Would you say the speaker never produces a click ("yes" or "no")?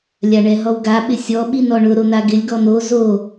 yes